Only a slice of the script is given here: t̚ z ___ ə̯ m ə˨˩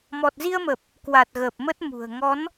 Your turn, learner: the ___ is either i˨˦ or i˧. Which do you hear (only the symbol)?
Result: i˧